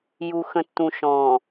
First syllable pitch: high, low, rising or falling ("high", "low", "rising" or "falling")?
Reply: low